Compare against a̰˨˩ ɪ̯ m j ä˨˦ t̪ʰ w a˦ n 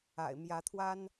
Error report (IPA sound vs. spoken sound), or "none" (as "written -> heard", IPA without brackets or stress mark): none